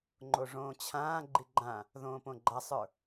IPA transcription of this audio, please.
ŋ͡ǃ o ʐ õː t͡ɕʰ ãː ɡ͡ǃ i ɡ͡ǃ ã | ð õː p õ ɡ͡ǃ a sˤ ə˞

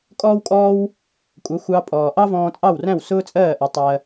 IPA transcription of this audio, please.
kʼ ɔː˥ w kʼ ɔː˥ w | kʷʼ ʌ˩˥ xʷ ɑ˧ pʼ ɔː˩ ʔ ɑ˥ v ɔ̃ː˧ t͡sʼ ɑ˥˩ w r æ̃˥˩ w s ʊː˥ t͡sʼ ɜː˥˩ ʔ ʌ˩˥ tˤ ɜ˧

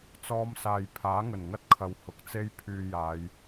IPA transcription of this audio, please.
t͡s ɔː˥ m s aː˧ j pʰ aː˨˥ ŋ ɵ˨˩ n ŋ ɐ˥ t̚ kʰ ɐ˨ w h ʊ˨ k̚ t͡s e˥ j pʰ yː˧ j aː˨˧ j

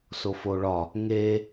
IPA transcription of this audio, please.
s o f o ɭ ɒ | ŋ e

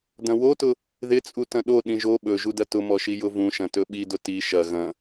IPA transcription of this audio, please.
d ɐ̃ w o t ʊ | ð ɪ t͡sʼ u t ɐ̃ ɗ o ɗ ĩ ʒ o ɓ ɵ ʒ u d ɐ t ʊ m ɔ ʃ i j ʊ v ũ ʃ ɐ̃ t ɵ ɓ i d ʊ t i ʃ ɐ ɣ ɐ̃

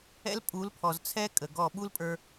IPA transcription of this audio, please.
ɛ̰˦ l pʼ u˨˦ l pʰ ɔ˨ z t͡sʰ ɛ˦ kʼ ə˨ ɡ ɔ˦˨ ɓ u˦ l pʼ ə˞˧

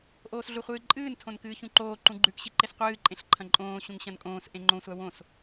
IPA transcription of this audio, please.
ʔ oː s ɮ u χʷ ɨː ǃʼ ɨː n tʰ õ n k ɨː ç ũ ǃ oː ǃ ũ ɡ͡ǃ ʉ k ɕ i ǃ e s qʷ ɨː ǃʼ ẽ ɬ ǃʰ ɐ̃ ǃʼ õː ɕ ũ ŋ ɕ ɐ̃ n kʼ õː s ʔ ẽ ŋ͡ǃ õ sʷ a w õ s

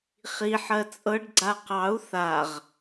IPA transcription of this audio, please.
χ i ħ ɜ t͡sʼ ɤ ɖ ɡ͡ǀ a q ɑ u̯ θ a ʁ

